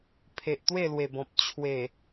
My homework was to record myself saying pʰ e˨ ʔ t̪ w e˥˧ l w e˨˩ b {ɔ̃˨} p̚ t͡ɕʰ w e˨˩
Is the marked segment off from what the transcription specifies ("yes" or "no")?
no